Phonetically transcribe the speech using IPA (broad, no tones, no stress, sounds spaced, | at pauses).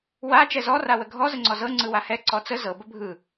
w a t͡ʃ ɛ z ɔ r a w ə ɡʱ ɔ z ə ŋ͡ǀ ɔ z ɤ ŋ͡ǀ ɯ w a h ɛ ǀ ɔ t͡s ə z ɤ b ə bʱ ɯ